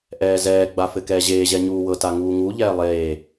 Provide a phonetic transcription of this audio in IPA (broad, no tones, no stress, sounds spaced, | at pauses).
ʔ ɛː z ɛː ɡ͡b a f ɘ k ɛː ʑ eː ʑ ɛ ɲ uː w ɤ t a ŋ uː ŋ u ʎ ɛː lˠ eː